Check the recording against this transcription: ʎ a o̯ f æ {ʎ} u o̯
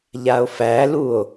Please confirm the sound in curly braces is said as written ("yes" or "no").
no